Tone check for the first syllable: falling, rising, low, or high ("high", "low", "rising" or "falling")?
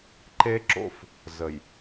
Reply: high